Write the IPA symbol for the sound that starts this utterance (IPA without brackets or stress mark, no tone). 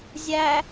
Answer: zʲ